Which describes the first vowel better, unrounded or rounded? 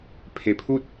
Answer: unrounded